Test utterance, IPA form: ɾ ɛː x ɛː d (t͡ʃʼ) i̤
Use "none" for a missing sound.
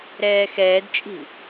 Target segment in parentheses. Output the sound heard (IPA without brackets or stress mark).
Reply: t͡ʃʼ